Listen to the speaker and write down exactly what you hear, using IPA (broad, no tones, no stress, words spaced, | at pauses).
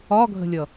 ɒɡʱə̤lʲʌ